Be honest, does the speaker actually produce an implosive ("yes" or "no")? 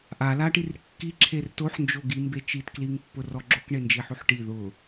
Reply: no